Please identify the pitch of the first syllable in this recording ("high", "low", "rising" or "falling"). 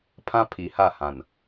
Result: high